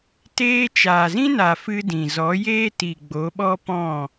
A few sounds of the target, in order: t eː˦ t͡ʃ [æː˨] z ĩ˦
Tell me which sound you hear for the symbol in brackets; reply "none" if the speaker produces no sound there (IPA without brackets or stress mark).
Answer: aː˨